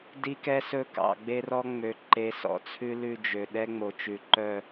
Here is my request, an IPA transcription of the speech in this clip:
d i˦ k ɛ˦ s ɵ˦ k ɑ̰˨ ɡ͡b e˦ r ɔ˦ ŋ͡m ø˨ ǃ e˨˦ s ɔ̰˨ t͡sʰ ʉ˦ l ʉ˦˨ d͡ʒ ø˨ ɗ ɛ˦ ŋ͡m o˨ t͡ʃ ʉ˨ ǃ œ˦˨

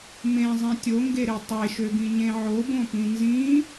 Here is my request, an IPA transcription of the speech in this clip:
m ẽ zˤ ĩ tʲ o ŋ ɡ e ɾ e tˤ e ʃ ø ɡ ĩ ɲ ẽ ʕ o b õ p ĩ n z ĩ

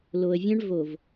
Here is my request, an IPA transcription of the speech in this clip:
l o˨ ə̯ vʲ œ̃˦ ɳ v o˨ v

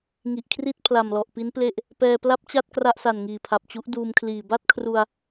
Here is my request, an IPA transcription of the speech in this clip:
ŋ i˨˩ ʔ kʰ r i˥˩ t̚ pʰ l a˨˩ m l ɔ˨˩ ʔ p i˦˥ n p l e˥˩ ʔ | p ɛː˧ p l a˥˩ p̚ t͡ɕ a˥˩ t̚ k r a˥˩ ʔ s a˨˩ n ŋ iː˨˩ pʰ a˨˩ p̚ t͡ɕ u˦˥ ʔ d uː˧ m kʰ l iː˨˩ b a˥˩ t̚ kʰ r u˧ a̯

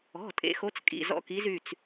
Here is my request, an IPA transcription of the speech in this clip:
ɔ̤˩˧˩ tʼ ḛ˨˥ x o˨˥ t͡s kʼ ḭ˩˧˩ z ɔ̰˦ k i˨˥ z y˩˧˩ t͡s

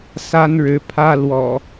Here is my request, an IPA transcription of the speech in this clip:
s a˦ n ɻ ɻ̩˨˦ pʰ ä˦ l w ɔ̰˨˩

